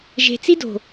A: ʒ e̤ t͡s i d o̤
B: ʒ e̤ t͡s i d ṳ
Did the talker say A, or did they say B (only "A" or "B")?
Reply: A